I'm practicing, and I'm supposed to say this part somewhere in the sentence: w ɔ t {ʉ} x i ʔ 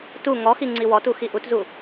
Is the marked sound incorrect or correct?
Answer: incorrect